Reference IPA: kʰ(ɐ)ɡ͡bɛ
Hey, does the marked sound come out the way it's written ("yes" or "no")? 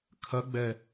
yes